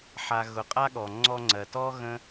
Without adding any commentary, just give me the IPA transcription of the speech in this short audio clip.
ħ a˨ ɣ ʊ˨˦ qʼ a˦ ɠ ɔ˨ ŋ͡ǀ ɔ˧ ŋ͡ǀ ɜ˨ t ɔ˦ ɣ ə̃˦

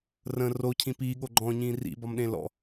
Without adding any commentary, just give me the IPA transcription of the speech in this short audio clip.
r ə̃ r o cʰ ĩ p iː ɠ o ɡ͡ǃ ɔ̃ ɲ ĩː r ḭ b ɒ m ɗ ẽ l ɔ̰

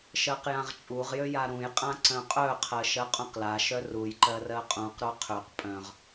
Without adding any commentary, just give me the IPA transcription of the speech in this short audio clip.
ʃ ɜ q j ã ʁ t͡ʃʼ u ʁ j ø j a ɾ ũ j qʼ ã ǀ œ̃ qʼ œ qʰ ɜ ʃ ɜ qʼ ũ q l a ʃ œ r u j ǃ ɜ r ɜ qʼ ũ q ɾ o qʰ ø q pʼ œ̃ ʁ

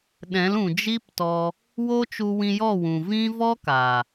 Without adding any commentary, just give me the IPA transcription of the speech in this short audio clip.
ɗ ɛ̃˨˦ l ũ˨ d͡ʒ i˦ p t ɔ˧ | w o˦ t͡ʃ u˧ w ĩ˧ j ɔ˦˨ w ũ˨ v ĩ˦ v ɔ˦ k a˨

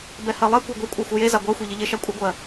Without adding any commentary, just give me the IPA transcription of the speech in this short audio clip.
b ɛ h ɜ lˠ ɛ kʷ a ɡʷ ɛ kʷʼ ɜ xʷ ɪ j e z a ɡʷ ɜ xʷ e ʎ ɪ ʎ e ʃ a kʷʼ ɪ ɡʷ ɜ

